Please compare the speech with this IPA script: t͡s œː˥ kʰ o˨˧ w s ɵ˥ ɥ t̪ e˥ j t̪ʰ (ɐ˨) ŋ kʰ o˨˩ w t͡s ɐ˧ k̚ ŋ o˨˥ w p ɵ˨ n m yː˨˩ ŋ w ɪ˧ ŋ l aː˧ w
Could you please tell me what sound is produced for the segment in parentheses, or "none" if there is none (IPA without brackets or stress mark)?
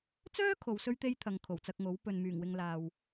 ɐ˨